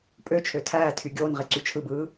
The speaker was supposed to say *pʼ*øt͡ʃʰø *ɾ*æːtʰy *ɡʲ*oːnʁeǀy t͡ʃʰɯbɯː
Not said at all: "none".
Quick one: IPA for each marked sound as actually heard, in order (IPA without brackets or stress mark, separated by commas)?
pʼ, tʰ, ɡʲ